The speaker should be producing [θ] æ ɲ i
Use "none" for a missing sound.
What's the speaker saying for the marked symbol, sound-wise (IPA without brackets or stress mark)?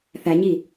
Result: θ